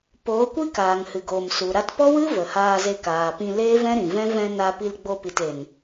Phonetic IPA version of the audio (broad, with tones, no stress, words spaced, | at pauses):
poː˨˦kʷi˦kaː˨ŋ hɨ˨ɡoː˨m su˨ ɾa˧tpɔ˦wɨ˦ və˨haː˧ze˧ kaː˨pĩ˧ leː˦vɛ̃˦ɾĩ˨vɛ̃˦ vɛ̃˧ na˧pi˧lɡ͡bo˧pi˨t e˨n